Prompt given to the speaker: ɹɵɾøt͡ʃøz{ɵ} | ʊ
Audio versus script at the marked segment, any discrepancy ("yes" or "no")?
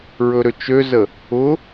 yes